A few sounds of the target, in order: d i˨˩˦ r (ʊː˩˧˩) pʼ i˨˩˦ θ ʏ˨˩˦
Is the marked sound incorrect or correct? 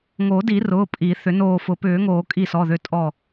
correct